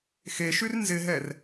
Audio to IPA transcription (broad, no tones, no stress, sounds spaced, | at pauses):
x e ʃ y r n z ɪ ɦ ɛ r